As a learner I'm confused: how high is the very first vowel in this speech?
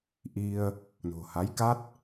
high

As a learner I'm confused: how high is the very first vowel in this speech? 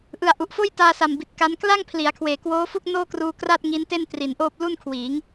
high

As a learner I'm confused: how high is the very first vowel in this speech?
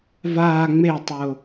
low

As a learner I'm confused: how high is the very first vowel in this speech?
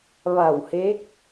low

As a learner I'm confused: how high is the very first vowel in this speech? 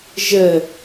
mid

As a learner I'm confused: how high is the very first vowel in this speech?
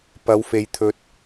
low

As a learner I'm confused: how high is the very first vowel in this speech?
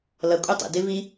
mid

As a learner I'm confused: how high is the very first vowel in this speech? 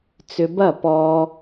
high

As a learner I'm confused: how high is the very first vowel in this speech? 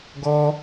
mid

